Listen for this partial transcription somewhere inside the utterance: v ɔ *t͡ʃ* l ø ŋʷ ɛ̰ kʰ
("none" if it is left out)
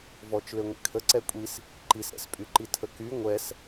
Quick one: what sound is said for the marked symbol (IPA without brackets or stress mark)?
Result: t͡ʃ